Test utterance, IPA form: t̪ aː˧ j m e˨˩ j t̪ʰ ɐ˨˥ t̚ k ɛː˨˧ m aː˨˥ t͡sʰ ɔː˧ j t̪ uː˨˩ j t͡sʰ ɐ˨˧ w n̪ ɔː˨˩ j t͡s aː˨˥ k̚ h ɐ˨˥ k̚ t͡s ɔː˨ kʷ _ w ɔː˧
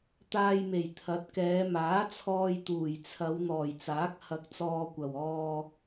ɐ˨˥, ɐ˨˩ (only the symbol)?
ɐ˨˩